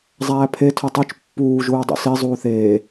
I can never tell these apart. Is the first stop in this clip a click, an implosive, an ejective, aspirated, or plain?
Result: aspirated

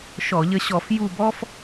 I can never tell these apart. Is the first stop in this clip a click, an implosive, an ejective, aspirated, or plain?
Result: plain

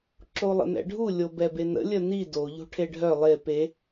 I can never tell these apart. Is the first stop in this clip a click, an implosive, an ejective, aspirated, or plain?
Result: click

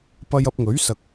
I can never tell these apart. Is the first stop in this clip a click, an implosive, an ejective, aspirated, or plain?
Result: plain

